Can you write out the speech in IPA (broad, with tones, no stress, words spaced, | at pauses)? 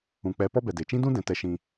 ũ˨k͡pɛ˨˦ pɔ˦bɛ˨de˨ t͡ʃĩ˦dũ˦dɛ̃˨ tɛ˧ʃĩ˧